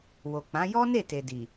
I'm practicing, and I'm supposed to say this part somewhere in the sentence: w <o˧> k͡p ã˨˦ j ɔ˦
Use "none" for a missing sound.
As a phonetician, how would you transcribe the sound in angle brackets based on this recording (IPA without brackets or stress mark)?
o˨